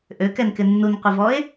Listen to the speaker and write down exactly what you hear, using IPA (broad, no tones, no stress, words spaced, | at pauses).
ʔøkɛnkɪ nːunqʷɪvɔe̯